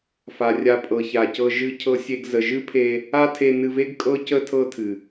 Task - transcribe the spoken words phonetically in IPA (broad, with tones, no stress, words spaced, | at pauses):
fa˨rʲa˧ pʼɤ˨ça˨cɤ˧ ʒɨ˧cʰɤ˧sʲe˧ɡ zə˨ʒɨ˦pʰe˧ | a˦tʰe˧nɨ˧ve˦ɡ kʼɤ˦cə˦ tʰɤ˦tʰɨ˨